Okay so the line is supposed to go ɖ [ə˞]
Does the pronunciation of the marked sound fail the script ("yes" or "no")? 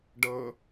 yes